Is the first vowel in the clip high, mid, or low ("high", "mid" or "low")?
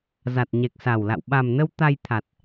low